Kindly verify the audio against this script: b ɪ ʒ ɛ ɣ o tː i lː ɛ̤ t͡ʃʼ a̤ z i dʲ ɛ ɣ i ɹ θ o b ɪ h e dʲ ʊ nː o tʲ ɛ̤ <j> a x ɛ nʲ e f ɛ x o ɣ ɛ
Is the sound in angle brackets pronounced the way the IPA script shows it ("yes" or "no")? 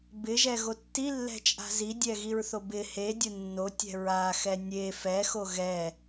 no